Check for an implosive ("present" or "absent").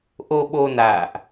present